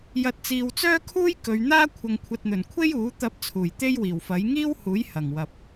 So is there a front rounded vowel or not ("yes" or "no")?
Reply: yes